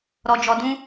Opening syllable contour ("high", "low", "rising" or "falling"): low